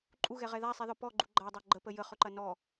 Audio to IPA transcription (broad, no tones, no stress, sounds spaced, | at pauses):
ǃʼ u ɣ ɛ ʁ ɛ ð a sˤ i ð ɔ p ɔ ɡ͡ǃ u ɡ͡ǃ a dˤ ɐ ɡ͡ǃ ə p ə j ə χ ɵ ǃ ɐ n ɔ